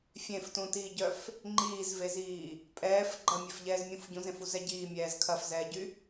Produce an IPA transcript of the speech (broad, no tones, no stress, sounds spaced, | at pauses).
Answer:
fʲ ẽ f t ũ t iː ɟ œ f | ŋ͡ǃ iː z v e z iː | pʼ ɛː f ɡ͡ǃ ɐ mʲ ɛ f ʎ ɛː z mʲ ũ f ɟ ũ z ẽ f u z ɛ ɟ iː mʲ ɛː z kʰ ɐ f z ɛː ɟ y